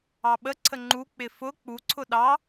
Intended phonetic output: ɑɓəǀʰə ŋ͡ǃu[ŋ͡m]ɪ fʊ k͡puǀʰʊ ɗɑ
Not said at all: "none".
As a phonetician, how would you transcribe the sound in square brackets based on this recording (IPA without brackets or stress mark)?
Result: k͡p